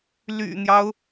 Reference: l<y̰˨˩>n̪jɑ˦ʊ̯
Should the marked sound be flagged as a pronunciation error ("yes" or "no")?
no